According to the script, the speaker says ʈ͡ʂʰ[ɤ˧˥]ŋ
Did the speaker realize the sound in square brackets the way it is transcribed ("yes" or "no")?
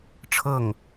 no